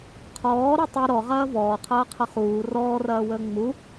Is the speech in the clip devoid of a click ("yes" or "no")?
yes